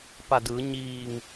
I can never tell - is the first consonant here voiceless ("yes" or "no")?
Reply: yes